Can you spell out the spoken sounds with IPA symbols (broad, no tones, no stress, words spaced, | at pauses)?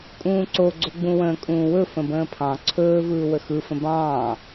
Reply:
kʼũːǀoɡ͡ǀo ɡ͡bũwə̃ːkʼũːwɵ fə̃bə̃ːpʰɑ̃ ǀʰɵː vɯːwəxɯ fə̃bɑ̃ː